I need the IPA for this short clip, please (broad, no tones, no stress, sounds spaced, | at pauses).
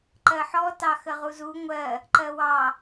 ǃ ɜ ħ ɔ t ɑ x ə ʁ u z u ŋʷ ɜ | ǃ ɜ w ɑ